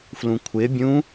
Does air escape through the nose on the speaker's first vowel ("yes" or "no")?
yes